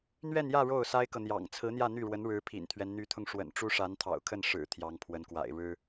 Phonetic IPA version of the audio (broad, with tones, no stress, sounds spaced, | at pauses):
n̪ ɥ ɛ˥˧ n j ä˥˧ ɻ o˥˩ ʊ̯ s a˥ ɪ̯ k ɤ˨ n̪ j ɑ̰˨˩ ŋ t͡sʰ ɹ̩˧˥ n̪ j ä˥˧ n̪ y˥˩ ɻ w ə˧˥ n ɻ ɻ̩˧˥ pʰ ḭ˨˩ n t̪ʰ ɥ ɛ˦ n n̪ y˧˥ t̪ʰ ʊ˧ ŋ ʂ w ə̰˨˩ n ʈ͡ʂ u˥ ʂ a˧˥ n t̪ʰ ɑ̰˨˩ ʊ̯ kʰ ə˥˩ n ʂ ɻ̩˨˩ t̪ʰ j ɑ˧˥ ŋ pʰ w ə˧˥ n k w a̰˨˩ ɪ̯ ɻ ɻ̩˥